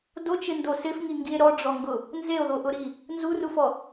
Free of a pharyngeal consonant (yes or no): yes